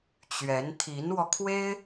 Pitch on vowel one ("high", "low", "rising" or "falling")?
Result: rising